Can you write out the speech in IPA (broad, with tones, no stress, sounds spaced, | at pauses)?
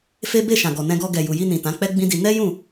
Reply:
f e˦ b e˦˨ ʃ ã˨ ɡ ɔ˨ n ɛ̃˧ ɡ ɔ˧ ɡ ɛ˨ j u˨ j i˧ n ĩ˨ t ã˨˦ k͡p ɛ˦ ɡ͡b ĩ˦ d i˧ n ɛ˦ j ũ˦˨